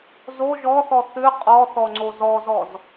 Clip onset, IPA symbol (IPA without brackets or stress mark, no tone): z